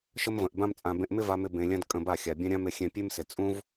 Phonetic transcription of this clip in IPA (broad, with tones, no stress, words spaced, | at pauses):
ʃə˦mvə̃˨ʔbã˦mt͡sʼã˧ bẽ˧ʔmɪ˦va˧mɪ˧ bẽ˧lʲã˦d kʼə̃˧ba˦˨ xʲa˨bʲã˦ɾʲã˦m ɪ˧xʲɛ̃˧pʲe˦msɪ˨ t͡sʼũ˦v